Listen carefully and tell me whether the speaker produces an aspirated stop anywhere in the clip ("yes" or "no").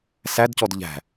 no